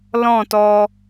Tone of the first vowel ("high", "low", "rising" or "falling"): falling